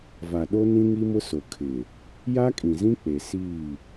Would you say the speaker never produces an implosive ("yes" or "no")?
no